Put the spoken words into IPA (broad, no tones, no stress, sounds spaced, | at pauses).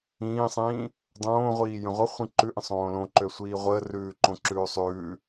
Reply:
ĩː sˤ ĩː | dˤ õː ʁʷ iː j ə̃ ʁʷ ə χʷ ĩ ǃ ʉ ʔ ə̃ sˤ õː l õ ǃ ø sʷ iː ʁʷ əː r ʉː ǃ õ ǁ ʉː sˤ ʉː